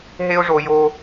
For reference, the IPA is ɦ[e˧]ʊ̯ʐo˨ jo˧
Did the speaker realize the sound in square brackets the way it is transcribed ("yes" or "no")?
yes